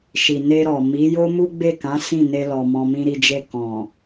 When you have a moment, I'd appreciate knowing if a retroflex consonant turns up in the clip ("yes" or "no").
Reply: no